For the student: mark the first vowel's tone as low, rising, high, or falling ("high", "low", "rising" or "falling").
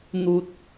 low